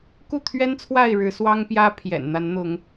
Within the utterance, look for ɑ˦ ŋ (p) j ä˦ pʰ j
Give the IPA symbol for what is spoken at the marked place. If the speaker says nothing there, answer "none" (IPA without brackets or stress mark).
p